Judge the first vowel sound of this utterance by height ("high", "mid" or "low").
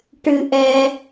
high